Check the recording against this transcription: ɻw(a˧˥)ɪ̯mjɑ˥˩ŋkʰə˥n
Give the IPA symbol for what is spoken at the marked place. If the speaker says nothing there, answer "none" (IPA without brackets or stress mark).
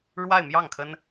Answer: a˥˧